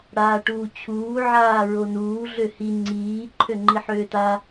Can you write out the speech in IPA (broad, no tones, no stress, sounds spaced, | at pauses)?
ɽ aː ʈ uː t͡ɕʰ uː ʕ aː ɹ o n uː ɮ ø h i ŋ͡ǀ iː ǃʰ ø ŋ͡ǃ i ħ øː t a